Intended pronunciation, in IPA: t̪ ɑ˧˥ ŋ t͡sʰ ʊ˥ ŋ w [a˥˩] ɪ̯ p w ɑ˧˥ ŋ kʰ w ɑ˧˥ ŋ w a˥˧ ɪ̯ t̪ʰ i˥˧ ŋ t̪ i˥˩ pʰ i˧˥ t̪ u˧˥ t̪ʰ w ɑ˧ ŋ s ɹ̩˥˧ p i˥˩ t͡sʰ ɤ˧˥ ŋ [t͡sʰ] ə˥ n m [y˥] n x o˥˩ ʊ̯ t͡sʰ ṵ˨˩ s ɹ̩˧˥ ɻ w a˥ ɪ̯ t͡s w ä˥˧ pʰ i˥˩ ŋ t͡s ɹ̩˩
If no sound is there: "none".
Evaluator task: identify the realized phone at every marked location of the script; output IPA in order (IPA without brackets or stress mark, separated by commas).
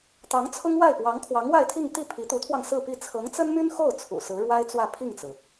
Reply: a˥˩, t͡s, y˥